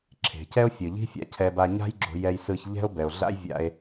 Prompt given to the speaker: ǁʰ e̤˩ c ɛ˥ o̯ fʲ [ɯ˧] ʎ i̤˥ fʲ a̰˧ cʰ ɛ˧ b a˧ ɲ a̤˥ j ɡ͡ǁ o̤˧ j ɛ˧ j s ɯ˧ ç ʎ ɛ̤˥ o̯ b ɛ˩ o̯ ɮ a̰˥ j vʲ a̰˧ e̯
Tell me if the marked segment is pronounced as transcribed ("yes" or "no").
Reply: no